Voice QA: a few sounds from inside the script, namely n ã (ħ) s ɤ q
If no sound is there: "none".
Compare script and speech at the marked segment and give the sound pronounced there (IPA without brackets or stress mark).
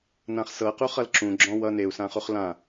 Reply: χ